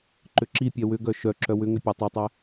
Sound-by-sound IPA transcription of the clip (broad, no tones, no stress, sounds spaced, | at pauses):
ǃ ʏ ǁ i pʲ ɛ w ʏ ɡ œ ʃ œ ǁ œ w ʏ ŋ ʏ pʲ ɛ tˤ ʏ tˤ ɛ